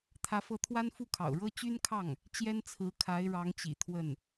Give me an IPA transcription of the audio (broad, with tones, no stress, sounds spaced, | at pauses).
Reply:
t̪ʰ ä˧˥ f ɤ˧˥ t̪ʰ w a˥ n f u˥˩ kʰ ɑ̰˨˩ ʊ̯ ɻ ɤ˥ t͡ɕ y˥ n kʰ ɑ˥˩ ŋ | t͡ɕ j ɛ˥ n t͡sʰ ɹ̩˧˥ kʰ a˧˥ ɪ̯ ɻ ɑ˧˥ ŋ t͡ɕ ḭ˨˩ t̪ʰ w ə˥˩ n